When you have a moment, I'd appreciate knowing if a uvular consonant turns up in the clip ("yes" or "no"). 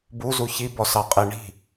yes